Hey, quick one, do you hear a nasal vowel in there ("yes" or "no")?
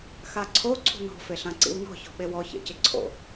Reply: yes